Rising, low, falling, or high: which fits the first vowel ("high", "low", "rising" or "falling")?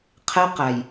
high